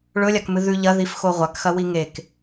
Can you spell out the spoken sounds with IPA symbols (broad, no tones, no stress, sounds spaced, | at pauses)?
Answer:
ɭ ɵ lʲ a k m ɨ ð ʉ ʎ ɐ ð i f x o ʁʷ a k x ɐ w i ŋ e k